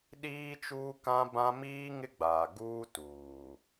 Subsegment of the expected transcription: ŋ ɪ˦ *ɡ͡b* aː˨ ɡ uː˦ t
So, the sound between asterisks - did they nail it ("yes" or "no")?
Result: yes